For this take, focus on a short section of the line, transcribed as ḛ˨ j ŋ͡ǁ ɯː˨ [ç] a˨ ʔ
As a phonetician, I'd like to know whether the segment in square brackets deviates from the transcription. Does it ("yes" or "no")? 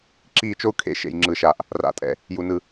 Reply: yes